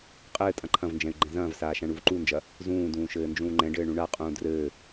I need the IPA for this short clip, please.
qʼ ɘː tʼ ɐ̃ ǃʰ ɐ̃ v n d͡ʒ ɛ̃ y̯ ɡ͡ǃ ɛ̃ z ɐ̃ː v s aː ʃ ã ɳ u v ǃ u n d͡ʒ ɐ | z ũː d ũː ʃ ɘː n d͡ʒ ũː ŋ͡ǃ ɛ̃ ɖ ɘː ɳ ũ ɳ a qʼ ũː d r ɘː

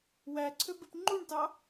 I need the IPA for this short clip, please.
w æ ǀʰ ø b e p ŋ͡ǃ u ɳ t ɑ

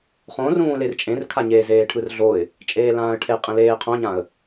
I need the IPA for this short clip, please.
χ õ r ũː l e r t͡ʃʼ ẽ r kʰ a ɲ eː z eː ʈʰ ɯ r ɮ o ɪ̯ | t͡ʃʼ eː l ãː ə̯ ʈʰ e qʼ ẽ l eː qʰ õ ɲ ã ə̯

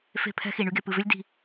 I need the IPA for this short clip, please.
f e̤˦˨ pʰ ɛ̤˦ x i˨ ɳ y˧ ɡ e˨ p ɨ˨ v ʏ˦ lʲ d i̤˧

